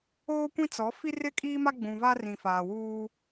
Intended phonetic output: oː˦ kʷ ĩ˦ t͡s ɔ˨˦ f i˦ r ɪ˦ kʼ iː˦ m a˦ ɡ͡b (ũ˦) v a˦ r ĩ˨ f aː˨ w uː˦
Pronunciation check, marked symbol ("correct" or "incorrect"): incorrect